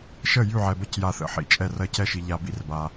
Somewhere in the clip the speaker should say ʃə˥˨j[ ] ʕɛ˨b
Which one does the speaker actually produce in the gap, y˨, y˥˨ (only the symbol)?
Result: y˥˨